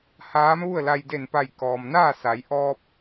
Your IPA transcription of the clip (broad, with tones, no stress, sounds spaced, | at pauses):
h aː˧˥ m ʋ u˥˨ ə̯ l a˧ j d e˧˩ n p a˧˩ j k ɔː˩ m n aː˥˨ s a˩˧ j ʔ ɔː˧ p̚